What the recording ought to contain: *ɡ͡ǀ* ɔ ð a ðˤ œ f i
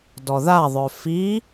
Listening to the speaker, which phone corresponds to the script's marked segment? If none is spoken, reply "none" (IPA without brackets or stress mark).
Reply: d